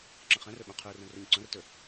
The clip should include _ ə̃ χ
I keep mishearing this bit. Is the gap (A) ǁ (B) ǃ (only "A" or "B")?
A